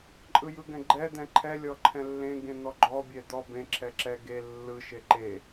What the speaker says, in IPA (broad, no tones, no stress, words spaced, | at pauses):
ǃʼɯjɯɡɛ̃ɡ͡ǃɛ d̪ɛ̃ǃʰɛ lʲɔǃʰɛ̃lːẽ ɡẽn̪ɔɡ͡ǃɔ bʲɛd̪ɔ bẽ ǁʰɛǁɛ ɡe lːɯ ʃeǃe